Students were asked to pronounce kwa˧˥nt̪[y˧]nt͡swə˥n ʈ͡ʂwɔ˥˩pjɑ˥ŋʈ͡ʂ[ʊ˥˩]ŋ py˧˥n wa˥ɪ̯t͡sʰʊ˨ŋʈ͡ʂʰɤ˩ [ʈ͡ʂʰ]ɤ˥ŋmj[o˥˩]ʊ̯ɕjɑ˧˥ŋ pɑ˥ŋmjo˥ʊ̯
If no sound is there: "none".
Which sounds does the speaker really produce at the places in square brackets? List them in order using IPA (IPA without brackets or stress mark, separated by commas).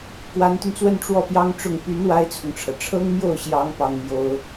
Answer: y˧, ʊ˥˩, ʈ͡ʂʰ, o˥˩